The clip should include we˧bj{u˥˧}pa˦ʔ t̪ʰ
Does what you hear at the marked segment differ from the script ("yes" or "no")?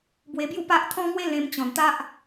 no